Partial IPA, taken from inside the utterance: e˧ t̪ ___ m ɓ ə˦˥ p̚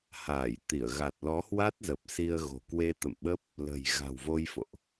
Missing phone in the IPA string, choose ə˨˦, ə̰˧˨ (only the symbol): ə̰˧˨